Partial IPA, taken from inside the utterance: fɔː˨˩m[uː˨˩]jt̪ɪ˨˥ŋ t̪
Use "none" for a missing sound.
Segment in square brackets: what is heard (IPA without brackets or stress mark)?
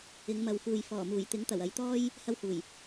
uː˨˩